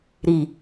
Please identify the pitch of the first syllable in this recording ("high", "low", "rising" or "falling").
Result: low